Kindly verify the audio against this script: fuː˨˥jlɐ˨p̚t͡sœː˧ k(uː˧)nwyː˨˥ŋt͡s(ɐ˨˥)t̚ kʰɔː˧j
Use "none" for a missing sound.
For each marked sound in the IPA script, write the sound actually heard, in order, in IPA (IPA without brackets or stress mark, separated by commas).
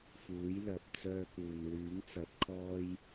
uː˨, ɐ˨˥